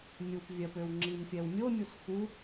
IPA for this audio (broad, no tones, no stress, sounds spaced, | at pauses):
mʲ u p vʲ œ p ø w ŋ͡ǁ i m fʲ ɛ w mʲ o mʲ u s x u